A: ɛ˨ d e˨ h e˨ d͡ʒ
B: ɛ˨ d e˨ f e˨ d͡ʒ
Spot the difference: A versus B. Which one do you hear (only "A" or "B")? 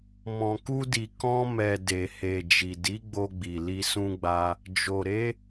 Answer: A